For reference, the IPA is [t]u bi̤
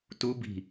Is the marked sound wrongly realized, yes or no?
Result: no